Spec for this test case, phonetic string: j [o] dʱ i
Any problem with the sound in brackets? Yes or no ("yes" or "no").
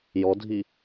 yes